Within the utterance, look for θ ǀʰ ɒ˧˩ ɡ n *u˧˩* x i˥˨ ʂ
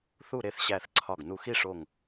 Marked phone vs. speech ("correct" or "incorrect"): correct